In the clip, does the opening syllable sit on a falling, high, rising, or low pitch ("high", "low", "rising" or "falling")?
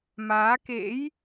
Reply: rising